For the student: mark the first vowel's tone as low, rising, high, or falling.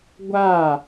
falling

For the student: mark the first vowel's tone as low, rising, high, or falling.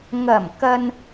low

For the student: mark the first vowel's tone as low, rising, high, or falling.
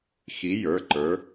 rising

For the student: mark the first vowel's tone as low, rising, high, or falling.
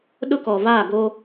high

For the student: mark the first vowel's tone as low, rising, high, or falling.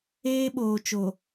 high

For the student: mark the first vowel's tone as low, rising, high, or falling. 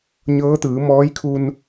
rising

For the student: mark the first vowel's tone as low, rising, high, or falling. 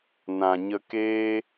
low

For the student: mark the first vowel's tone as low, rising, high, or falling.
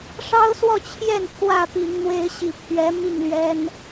high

